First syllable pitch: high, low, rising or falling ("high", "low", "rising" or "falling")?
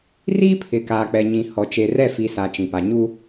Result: high